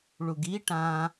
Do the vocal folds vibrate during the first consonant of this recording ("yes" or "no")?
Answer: yes